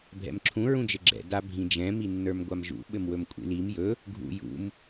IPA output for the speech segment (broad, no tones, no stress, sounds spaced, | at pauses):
bʱ ɛ̰ m ǁʰ ũ ɹ ũ d͡ʒ ɘ ɡ͡ǁ ɛ̰ d a bʱ ĩ d͡ʒ ɛ̃ m i nː ə˞ m ɡʷ a m ʒ ṵ ɓ ɘ m w ɵ m kʷʼ ḭ l i m j ɵ | ɡʱ ṵ j ṵ m